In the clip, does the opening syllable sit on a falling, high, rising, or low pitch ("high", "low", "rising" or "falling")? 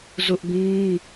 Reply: high